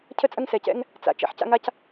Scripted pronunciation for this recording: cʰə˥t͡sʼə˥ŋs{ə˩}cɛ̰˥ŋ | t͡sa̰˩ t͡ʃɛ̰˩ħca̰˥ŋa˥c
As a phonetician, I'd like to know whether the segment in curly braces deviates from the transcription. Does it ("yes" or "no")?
yes